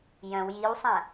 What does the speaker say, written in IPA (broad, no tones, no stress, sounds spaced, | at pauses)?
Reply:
j œ̃ w j i w sˤ ã